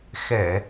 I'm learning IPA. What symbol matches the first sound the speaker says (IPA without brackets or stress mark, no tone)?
x